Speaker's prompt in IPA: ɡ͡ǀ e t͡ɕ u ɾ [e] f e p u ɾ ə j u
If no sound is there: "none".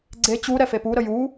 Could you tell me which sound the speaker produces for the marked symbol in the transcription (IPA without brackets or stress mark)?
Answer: ɛ